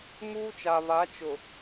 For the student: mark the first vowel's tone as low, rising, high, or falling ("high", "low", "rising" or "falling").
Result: high